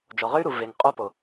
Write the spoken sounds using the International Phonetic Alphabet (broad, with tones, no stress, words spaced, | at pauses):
d͡ʒɔ˨ʁø˦y̯ɾu˨ ve˨ŋqʼo˦po˨